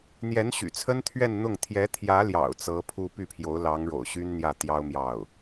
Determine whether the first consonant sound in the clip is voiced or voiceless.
voiced